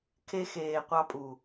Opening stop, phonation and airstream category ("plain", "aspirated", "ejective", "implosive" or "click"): aspirated